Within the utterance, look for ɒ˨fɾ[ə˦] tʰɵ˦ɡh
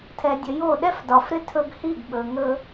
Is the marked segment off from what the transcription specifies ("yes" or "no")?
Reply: yes